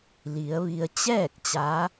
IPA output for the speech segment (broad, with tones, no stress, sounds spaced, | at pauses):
l i˩˧ ə̯ ʋ i˧ ə̯ t͡ɕ ɛː˥˨ k̚ t͡ɕ a˧˥